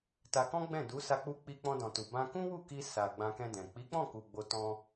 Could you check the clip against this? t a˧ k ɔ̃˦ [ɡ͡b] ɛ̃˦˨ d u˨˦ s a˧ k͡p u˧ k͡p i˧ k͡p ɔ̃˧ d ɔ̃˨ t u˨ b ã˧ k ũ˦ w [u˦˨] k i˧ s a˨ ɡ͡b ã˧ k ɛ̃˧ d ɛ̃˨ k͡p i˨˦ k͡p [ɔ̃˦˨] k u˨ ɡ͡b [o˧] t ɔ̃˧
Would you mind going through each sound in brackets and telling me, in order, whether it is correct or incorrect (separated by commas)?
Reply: correct, correct, correct, correct